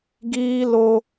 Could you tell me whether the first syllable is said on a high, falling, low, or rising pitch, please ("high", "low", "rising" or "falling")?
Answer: high